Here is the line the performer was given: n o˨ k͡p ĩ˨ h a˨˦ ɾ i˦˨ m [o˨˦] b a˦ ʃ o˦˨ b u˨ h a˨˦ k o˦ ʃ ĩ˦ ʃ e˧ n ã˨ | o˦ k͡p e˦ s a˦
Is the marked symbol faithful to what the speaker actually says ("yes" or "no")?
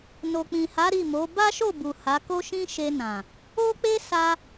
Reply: yes